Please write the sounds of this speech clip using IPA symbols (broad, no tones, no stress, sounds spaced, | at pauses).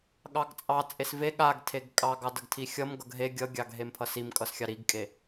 ɠ ɑ ɡ t͡sʼ ɑ t͡sʼ e s v e ɠ a ɡ tʰ e ɡ kʼ ɑ ɡ ɑ d ʌ ɡ tʰ i xʲ ʌ m ɡ ʌ ɡ ɦ e ɡʲ ʌ ɡʲ ɑ ɡ ɦ e m pʰ ʌ s i m kʼ ʌ s xʲ ɑ ɾ i ɡ kʼ e